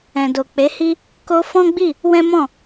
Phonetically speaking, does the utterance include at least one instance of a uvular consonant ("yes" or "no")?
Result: no